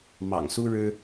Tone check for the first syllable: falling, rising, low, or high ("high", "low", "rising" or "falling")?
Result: low